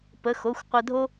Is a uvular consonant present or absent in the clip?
present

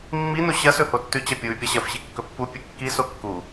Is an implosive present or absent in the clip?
absent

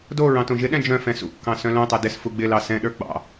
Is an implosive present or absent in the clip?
present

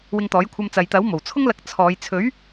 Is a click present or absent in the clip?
absent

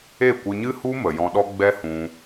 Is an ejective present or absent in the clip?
absent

